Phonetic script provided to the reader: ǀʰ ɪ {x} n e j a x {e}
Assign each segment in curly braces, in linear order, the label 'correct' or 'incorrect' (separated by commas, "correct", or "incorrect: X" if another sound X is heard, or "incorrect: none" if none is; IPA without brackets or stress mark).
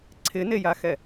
incorrect: none, incorrect: ɛ